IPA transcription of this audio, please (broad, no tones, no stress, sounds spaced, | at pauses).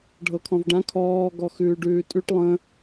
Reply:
ɖʱ ɤ kʰ ɔ̃ v ɖ ã kʰ ɔː ɡ ɔ x ʉː ɖ ʉː tʼ ʉ ʈ lˠ ə̃